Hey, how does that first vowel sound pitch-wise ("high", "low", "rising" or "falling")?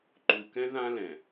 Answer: low